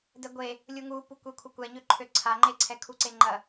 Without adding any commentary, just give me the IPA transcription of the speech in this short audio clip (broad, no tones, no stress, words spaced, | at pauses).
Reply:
dɛɡʷe | lʲuŋupu kʷekʷʰəkʷɛɲø ǃʰøǀʰaŋ͡ǃeǀʰɛ kʰuǀeŋ͡ǃɐ